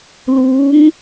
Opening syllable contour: rising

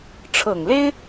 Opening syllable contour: low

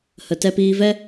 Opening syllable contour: low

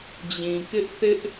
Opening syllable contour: low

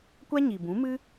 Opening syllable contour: high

